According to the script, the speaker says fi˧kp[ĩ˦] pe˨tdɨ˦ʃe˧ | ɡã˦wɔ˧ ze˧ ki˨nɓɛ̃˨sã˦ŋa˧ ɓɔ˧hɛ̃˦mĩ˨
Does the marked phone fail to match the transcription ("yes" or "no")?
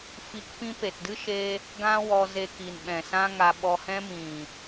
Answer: no